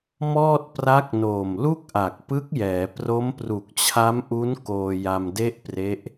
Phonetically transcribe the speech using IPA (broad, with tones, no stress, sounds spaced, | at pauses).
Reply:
m ɔː˥˩ t̚ p r a˦˥ k̚ n oː˨˩ m l u˥˩ k̚ ʔ a˨˩ k̚ p ɯ˦˥ k̚ j ɛː˩˦ p r o˦˥ m p r u˨˩ k̚ t͡ɕʰ a˦˥ m ʔ u˦˥ n k oː˧ j a˧ m d e˥˩ ʔ p r e˦˥ ʔ